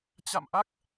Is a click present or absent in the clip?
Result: absent